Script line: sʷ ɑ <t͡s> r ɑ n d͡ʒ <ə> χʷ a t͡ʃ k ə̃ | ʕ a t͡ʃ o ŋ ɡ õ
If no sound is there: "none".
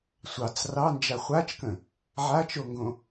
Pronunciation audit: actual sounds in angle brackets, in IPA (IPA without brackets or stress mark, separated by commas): t͡s, a